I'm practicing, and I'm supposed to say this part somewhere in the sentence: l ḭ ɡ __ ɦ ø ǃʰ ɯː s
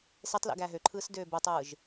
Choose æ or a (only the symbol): æ